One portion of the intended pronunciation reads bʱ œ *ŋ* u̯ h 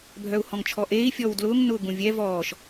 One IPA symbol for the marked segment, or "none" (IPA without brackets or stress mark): none